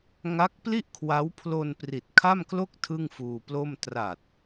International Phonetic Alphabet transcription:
ŋa˦˥k̚pli˥˩ʔkʰwa˦˥w pʰlo˧n pri˨˩t̚kʰa˥˩mklo˥˩k̚ tʰɯ˥˩ŋfuː˧plo˥˩m tra˨˩t̚

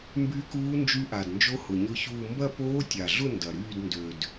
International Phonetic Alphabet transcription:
mby˦˥kuː˦˥ nd͡ʒy˦˥ʔa˨˩dnd͡ʒo˦˥ hʊ˨˩ɲʊ˥˧çuː˥˧ mbɐ˥˧poː˦˥tʲa˨˩ɮʊ˥˧ ndɐ˨˩ɾyː˥˧dndø˨˩d

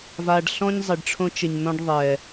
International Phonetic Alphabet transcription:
va˨ɖɬɔ̃˦ɲ zˤe˨ɖʈ͡ʂʰõ˦t͡ʃɪ˨ɲnɔ̃˦ɖ ðˤɛ˨

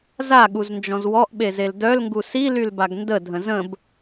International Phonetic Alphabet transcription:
zaɠuznd͡ʒɔ̃z wɔʔɓezel dœlŋɡu silylbaɡ ndədʱə̃ zə̃b

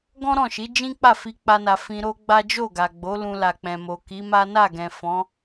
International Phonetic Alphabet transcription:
ɡɔ̃˦ɾɔ̃˦˨ʃi˨˦ d͡ʒĩ˦k͡pa˦˨ fi˧k͡pa˧na˨ fĩ˧ɾo˦ɡ͡ba˦ d͡ʒo˦˨ɡa˨ɡ͡bo˨˦ lũ˧la˨k͡pɛ̃˨ mo˨ki˨˦ma˦ na˦˨ɡɛ̃˨ fɔ̃˨˦

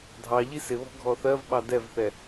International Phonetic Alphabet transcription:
dʱɑ ʎisɪβɔ̤ ɡʱɔθɜvɓɑ dɛvθɛ

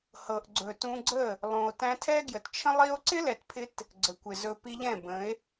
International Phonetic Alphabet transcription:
hɤ˨ʔɡ͡ǀɵ˨ tũ˧ɡ͡ǀə˦˨ | lˠũ˨o̯ tæ̃˧tʰɛ˦ɡjə˨tt͡ʃʰə̃˦ lˠi˧o̯ǀɪ˦lɛ˨tpʰɪ˧t | ɡ͡ǀə˨kʷɪ˨zɵ˧ pi˧ʎɛ̃˦˨bə̃˨˦e̯

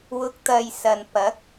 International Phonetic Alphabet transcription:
wʊ˧k̚t̪ɐ˧j sɐ˨npɐ˨˥k̚

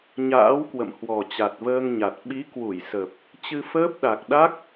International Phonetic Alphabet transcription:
ɲa̰ː˧˥wkwə̰˧˨m hwɔ˨˩t͡ɕa˨˩t̚vəː˧ŋɲa˨˩t̚ ɓi˨˦kwu˧˩jsə˨˩p̚ | t͡ɕɨ˧fəː˦˥p̚ɗa˨˩k̚ ɗa˦˥k̚

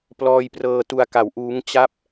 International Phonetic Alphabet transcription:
plɔː˧jprɤː˧ tu˧a̯ka˩˦wʔuː˦˥ŋ t͡ɕa˥˩p̚

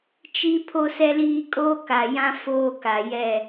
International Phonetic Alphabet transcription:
t͡ʃi˦ pʰo˦sɛ˦liː˦ kʼoː˦ka˨jã˦ foː˦ka˨jɛ˦˨

